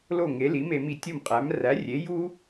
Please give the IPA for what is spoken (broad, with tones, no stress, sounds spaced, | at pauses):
l o˥˩ ŋ e˩˥ l i˩˥ m e˧ m i˧ tʲ o˥˩ m qʼ æ˩˥ m r æ˩˥ rʲ e˩˥ j u˥